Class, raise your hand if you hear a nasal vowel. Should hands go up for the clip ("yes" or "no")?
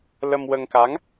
no